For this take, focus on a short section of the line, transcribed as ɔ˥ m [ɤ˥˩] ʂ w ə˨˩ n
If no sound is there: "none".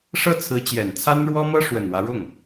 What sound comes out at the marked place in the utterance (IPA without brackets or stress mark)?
ɤ˥